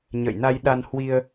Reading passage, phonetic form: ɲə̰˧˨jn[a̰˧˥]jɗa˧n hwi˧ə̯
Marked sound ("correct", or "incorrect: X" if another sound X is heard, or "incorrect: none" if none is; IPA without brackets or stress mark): incorrect: a˧